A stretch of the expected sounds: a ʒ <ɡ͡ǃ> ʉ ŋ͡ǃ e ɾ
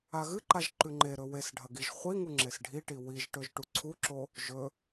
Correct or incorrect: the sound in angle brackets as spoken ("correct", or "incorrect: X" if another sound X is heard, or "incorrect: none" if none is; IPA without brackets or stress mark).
incorrect: ǃ